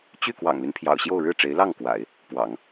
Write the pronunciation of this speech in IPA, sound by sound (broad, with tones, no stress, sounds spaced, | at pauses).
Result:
t͡ɕ y˥˩ k w ɑ̰˨˩ ŋ l y˦ n pʰ j ɑ̰˨˩ ʊ̯ ɕ j o˥˧ ʊ̯ ɻ ɻ̩˥˩ ʈ͡ʂ e˧˥ ɪ̯ l ɑ˥˩ ŋ k w a̰˨˩˦ ɪ̯ | p w ɑ̰˨˩˦ ŋ